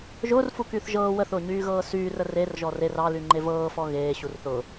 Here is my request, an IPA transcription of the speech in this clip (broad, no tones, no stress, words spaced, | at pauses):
ʒʊːrfukyːθ ʒɤː wəθʊːɲyːɣɤː syːrə rerʒɔ rer ɑlyŋ͡ǃe vɤːfɔ ɣeːɕur θʊ